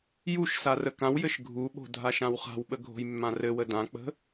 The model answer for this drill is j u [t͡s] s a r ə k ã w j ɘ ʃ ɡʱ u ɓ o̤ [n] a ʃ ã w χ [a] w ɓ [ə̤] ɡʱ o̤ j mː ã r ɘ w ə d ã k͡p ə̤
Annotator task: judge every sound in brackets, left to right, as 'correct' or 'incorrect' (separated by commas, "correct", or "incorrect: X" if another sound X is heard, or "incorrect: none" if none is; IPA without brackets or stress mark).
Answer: incorrect: ʃ, incorrect: dʱ, incorrect: a̤, incorrect: ə